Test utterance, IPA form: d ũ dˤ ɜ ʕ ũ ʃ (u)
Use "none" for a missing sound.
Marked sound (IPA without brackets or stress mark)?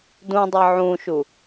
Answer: u